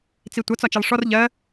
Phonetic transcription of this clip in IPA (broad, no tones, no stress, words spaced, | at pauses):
t͡sitʷʌ t͡sɒt͡ʃɛlˠʂɔr ʎɜ